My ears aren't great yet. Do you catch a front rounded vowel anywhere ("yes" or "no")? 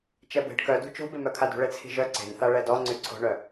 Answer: yes